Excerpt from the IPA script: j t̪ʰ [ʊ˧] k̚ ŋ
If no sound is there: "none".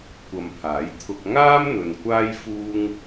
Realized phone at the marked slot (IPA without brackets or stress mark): ʊ˧